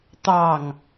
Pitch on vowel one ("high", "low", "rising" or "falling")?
falling